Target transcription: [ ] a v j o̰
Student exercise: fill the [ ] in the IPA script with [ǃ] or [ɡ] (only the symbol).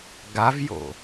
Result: ɡ